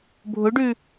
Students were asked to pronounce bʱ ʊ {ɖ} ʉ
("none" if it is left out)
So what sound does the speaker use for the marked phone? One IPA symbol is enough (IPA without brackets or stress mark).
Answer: ɖ